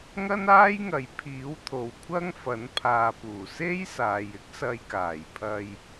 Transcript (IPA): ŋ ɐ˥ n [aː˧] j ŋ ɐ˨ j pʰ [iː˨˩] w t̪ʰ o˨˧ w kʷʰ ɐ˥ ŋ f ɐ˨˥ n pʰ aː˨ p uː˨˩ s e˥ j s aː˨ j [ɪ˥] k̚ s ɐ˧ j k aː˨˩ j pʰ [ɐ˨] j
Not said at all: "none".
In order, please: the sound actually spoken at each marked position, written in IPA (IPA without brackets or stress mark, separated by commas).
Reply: aː˥, iː˨˥, ɪ˥, ɐ˧